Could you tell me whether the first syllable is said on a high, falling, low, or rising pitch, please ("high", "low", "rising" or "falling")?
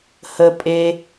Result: high